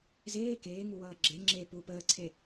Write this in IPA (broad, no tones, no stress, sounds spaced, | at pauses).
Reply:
z eː k eː ŋ u w ʌː ɡ͡ǁ e ŋ͡ǁ e p u p əː ǀʰ e